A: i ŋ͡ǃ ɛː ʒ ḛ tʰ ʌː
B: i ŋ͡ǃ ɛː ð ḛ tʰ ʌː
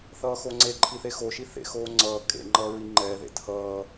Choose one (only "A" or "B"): B